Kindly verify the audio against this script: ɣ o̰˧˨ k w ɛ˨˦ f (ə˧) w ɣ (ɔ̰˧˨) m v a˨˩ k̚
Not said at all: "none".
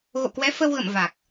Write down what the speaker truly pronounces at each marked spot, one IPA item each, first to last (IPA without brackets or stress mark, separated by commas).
ə˧, ə̰˧˨